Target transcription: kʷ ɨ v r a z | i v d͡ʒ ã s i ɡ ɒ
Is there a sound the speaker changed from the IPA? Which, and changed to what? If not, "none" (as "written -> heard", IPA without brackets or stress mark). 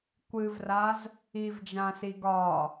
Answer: none